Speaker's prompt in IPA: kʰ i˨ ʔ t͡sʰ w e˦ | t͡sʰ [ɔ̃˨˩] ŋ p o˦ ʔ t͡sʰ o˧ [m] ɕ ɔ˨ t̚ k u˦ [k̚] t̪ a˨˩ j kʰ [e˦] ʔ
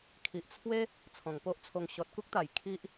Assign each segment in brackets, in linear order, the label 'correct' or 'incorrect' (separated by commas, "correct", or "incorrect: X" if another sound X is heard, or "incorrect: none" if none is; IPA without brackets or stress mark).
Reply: correct, incorrect: ŋ, correct, incorrect: i˦